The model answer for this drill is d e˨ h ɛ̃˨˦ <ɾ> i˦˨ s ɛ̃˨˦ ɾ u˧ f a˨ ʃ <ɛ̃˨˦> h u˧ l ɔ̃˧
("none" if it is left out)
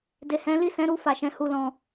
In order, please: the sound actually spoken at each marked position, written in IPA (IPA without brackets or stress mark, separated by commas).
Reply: l, ɛ̃˨˦